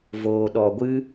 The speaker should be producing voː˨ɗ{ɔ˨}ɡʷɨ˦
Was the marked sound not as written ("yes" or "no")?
no